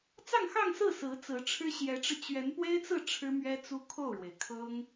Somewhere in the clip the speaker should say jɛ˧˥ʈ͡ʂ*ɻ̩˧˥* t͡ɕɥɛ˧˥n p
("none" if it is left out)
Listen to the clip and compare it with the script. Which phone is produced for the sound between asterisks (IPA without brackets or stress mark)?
ɻ̩˧